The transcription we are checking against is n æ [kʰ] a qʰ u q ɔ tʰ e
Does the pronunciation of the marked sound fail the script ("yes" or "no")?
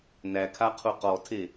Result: no